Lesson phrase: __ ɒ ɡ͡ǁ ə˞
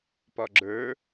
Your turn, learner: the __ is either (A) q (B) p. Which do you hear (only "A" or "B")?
B